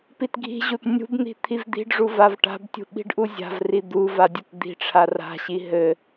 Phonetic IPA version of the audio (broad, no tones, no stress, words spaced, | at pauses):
pitɡʱi̤ʑut nʲṳbn̪i̤ t̪ʰivd̪i̤ɖʐu vavʈa̤btʲṳ ɓi̤ɖʔuzʲa̤vri d̪uva dʲutd̪i̤ʈ͡ʂʰa ra̤ɕi ɦɘ